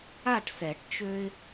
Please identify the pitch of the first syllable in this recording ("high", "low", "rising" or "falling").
falling